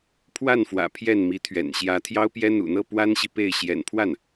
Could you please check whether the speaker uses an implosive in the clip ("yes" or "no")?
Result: no